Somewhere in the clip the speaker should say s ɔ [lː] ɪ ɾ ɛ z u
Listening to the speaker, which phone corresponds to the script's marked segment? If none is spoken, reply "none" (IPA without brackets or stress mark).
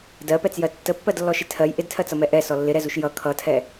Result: lː